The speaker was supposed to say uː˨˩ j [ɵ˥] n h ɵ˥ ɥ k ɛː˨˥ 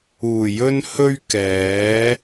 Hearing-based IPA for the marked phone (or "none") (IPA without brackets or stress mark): ɵ˥